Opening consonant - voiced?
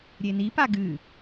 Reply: yes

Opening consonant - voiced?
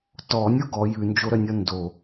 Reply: no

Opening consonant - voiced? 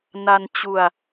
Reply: yes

